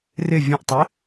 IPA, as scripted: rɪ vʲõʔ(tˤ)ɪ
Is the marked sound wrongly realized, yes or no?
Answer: no